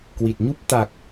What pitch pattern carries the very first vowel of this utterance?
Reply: low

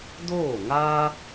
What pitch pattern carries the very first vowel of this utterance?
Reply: falling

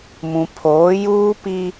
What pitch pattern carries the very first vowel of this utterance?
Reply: low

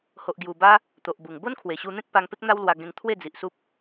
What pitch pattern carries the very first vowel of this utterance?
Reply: low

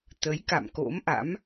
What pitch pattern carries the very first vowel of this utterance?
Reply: rising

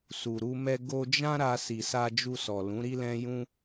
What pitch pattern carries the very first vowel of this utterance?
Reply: low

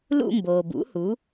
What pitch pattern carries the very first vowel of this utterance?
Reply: falling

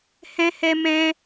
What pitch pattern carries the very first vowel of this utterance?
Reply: high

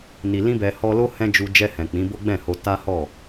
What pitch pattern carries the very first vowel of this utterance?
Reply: low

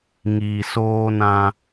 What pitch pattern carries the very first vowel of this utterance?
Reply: low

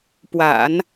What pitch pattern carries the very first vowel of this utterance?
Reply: low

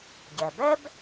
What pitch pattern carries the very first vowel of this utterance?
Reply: low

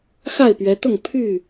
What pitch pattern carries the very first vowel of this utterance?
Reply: falling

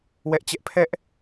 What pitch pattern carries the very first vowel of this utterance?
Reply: high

